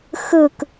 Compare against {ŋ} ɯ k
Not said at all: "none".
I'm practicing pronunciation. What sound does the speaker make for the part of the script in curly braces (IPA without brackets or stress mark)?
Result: x